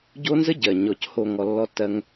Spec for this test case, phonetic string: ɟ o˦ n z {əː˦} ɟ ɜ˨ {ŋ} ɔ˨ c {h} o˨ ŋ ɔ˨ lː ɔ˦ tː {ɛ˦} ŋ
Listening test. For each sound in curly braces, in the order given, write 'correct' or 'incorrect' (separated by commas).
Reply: incorrect, incorrect, correct, incorrect